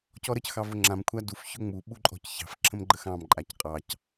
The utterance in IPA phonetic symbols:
c ɔ ɾ ə c x ɑ v ʊ ŋ͡ǁ ã m kʷʰ a d u f ç ʊ ŋ͡m u ɓ u ǃʼ ɔ̤ c ç ɑ̤ f ǁʰ ə̃ m ɡ͡ǃ ə x ɑ̃ m ǃʼ a c qʼ ɑ c

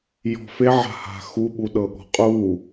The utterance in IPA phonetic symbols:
j ɔ̤ f e ʕ a̤ h a̤ x u ɓ u ɗ ɤ ɠ ɔ̤ qʼ u

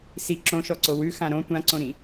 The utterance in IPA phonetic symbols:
s i ǁ õ ʃ ɔ ǀ o w ʉ x ã ɾ õ tʷ ã ǀ õ ɾ ĩ

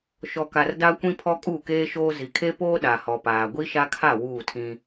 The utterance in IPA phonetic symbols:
ʃ ɔ˨ k a˨ r d a˦ kʷ ĩ˦ pʰ ɔ˦ kʼ uː˦˨ k eː˦ ʃ oː˦ z i˨ kʰ e˦ p oː˦ ɗ a˨ h ɔ˨ p aː˨ ɡʷ i˦ ʃ a˦ kʰ a˦˨ w uː˦˨ tʰ ĩ˦

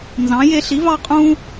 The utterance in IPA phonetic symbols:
n z ɑ̃˨˥ j e˦ ɬ i˨˥ v ɑ˦ qʼ ũ˦

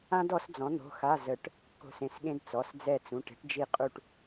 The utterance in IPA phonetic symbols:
ã˥ d ɔ˨˥ s d͡z ɔ̃˨˥ n̪ o̤˧˥˧ x a˧˥˧ z ə˨˩˦ ʈ | k o̤˦˨ s ẽ˩˧˩ s ɠ ẽ˥ d t͡s ɔ˩˧˩ s d͡z ɛ˦˨ t͡s ũ˩˧˩ ʈ e̤˥ ʈ d͡ʒ i˦˨ qʼ u˦˨ ʈ

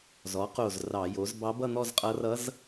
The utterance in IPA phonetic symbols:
z ɔ˩˥ q o˧˩ z r ɑ˧˩˧ j o˩˥ z b ɑ˧˥ b ʌ˥˧ n̪ ɔ˥˧ z qʼ ʌ˧˥ r ʌ˧˥ z

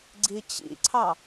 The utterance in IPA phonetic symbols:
ɡ͡ǀ i t͡ɕ ḭ ǀʰ ɑ

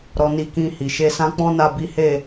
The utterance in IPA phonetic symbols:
ɾ ɔ˧ n i˧ k ĩ˧ h i˨ ʃ e˧ s ã˦ k͡p ɔ̃˦ n a˦˨ b i˨˦ h e˦˨

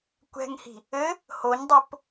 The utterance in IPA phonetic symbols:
kʷ ɛ̤ ŋ h i̤ | ɘ | h o ɲ dˤ o p

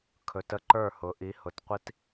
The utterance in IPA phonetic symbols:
kʰ ɵ˩˧ t ə˧ ǃ ə˞˧˩ h ʊ˩˧ ʔ i˩˧ h ʊ˩˧ t qʷ i˧ t

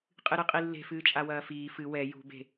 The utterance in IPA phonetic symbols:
qʼ ɨ ɾ ɨ qʼ i lː e̤ f ɨː t͡ʃʼ a w ɐː f iː f ɨ w ɛ j ṳ b e̤

